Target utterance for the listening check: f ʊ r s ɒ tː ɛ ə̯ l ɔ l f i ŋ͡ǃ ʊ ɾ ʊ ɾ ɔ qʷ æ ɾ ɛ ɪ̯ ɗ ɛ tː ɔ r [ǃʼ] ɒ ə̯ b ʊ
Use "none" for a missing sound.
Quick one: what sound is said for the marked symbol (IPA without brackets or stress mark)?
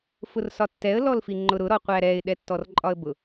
ǃʼ